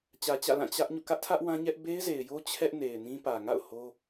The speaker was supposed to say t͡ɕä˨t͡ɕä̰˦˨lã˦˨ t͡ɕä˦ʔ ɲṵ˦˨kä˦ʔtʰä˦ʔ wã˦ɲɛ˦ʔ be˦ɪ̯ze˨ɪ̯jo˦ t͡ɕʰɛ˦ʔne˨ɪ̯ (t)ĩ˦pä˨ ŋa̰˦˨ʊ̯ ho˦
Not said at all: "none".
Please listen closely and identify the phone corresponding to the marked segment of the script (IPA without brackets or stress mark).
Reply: n